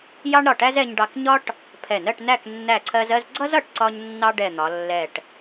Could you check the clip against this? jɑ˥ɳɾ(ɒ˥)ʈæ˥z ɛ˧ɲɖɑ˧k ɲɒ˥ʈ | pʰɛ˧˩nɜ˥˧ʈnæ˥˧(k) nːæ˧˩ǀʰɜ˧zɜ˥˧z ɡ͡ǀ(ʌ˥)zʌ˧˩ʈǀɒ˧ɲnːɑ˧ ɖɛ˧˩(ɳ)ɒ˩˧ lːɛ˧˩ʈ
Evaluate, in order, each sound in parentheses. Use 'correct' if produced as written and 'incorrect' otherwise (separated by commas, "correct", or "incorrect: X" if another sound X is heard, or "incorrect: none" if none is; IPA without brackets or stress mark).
incorrect: ɒ˧˩, correct, correct, incorrect: n̪